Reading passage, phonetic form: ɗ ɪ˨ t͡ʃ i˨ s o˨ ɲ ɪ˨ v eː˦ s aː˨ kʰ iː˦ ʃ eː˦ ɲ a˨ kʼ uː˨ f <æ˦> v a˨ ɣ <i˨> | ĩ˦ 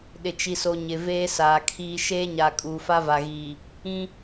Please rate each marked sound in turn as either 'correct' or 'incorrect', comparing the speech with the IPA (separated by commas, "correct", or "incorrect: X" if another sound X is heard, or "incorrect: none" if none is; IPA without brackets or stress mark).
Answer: incorrect: a˦, incorrect: iː˨